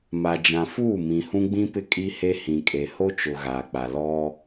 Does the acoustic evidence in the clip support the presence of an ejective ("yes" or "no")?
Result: yes